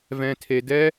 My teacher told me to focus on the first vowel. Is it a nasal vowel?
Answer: yes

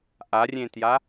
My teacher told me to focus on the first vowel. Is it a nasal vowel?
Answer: no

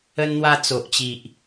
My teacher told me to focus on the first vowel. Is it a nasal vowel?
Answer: no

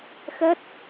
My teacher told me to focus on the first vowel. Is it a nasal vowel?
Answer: no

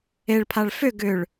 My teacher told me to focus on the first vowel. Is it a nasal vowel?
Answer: no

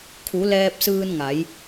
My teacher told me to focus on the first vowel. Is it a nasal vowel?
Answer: no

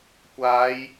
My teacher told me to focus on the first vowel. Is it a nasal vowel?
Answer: no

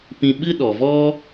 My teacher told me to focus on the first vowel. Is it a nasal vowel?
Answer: yes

